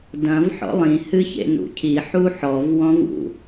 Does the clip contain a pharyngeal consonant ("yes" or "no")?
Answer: yes